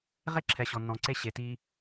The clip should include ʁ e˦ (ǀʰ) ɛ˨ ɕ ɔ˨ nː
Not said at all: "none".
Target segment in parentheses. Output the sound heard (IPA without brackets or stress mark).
ǁʰ